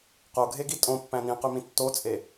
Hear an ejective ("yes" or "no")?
yes